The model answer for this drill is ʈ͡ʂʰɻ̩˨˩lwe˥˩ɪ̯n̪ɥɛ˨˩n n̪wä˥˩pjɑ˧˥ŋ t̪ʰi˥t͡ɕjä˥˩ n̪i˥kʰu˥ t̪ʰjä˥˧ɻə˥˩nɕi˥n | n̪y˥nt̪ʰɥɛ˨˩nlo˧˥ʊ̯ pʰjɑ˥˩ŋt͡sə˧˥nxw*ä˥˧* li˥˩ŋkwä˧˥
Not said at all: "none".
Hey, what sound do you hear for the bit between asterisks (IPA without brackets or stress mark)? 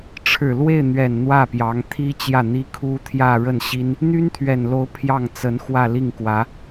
ä˥˧